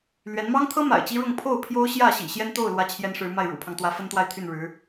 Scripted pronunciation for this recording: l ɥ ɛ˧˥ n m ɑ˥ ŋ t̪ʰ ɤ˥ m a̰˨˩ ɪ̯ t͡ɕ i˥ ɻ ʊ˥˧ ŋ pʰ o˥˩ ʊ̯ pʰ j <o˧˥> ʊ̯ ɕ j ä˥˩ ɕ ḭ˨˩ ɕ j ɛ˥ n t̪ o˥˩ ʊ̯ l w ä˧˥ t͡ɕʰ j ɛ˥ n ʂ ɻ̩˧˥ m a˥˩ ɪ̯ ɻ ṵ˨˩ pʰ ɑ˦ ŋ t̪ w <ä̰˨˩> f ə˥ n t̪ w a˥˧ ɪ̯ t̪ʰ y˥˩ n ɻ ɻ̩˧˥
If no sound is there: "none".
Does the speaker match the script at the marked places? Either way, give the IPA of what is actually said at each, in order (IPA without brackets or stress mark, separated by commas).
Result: o˥, ä˧˥